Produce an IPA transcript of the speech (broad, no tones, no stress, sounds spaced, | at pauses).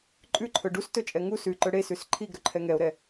ǃʼ ʉ ǃʰ ɵ ɖ u s t ɵ t͡ʃʼ ɛ ŋ u s ʉ ǃ ɵ ɽ e s ʉ s ǃʰ i ɡ ɾ ɵ ǃʰ ɛ ŋ ɛ o̯ ɾ ɛ